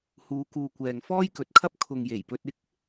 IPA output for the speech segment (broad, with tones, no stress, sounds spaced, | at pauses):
h uː˨˧ k uː˨ kʷ ɛː˨ ŋ f ɔː˥ j k ɵ˨˥ t̚ kʰ ɐ˥ p̚ kʰ ʊ˨ ŋ j e˨˩ j p ɵ˧ t̚ ɪ˥ k̚